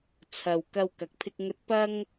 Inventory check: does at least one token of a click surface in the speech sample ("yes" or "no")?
no